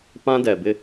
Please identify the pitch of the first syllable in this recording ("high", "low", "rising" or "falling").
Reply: high